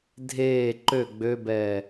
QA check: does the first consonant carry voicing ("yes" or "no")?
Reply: yes